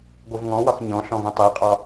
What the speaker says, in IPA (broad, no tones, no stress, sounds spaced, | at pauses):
ɡʷ ɯ v ŋ ɔ̃ w ɒ x ɲ ɔ̃ ɬ ɔ̃ v ũ tˤ i qʼ ɒ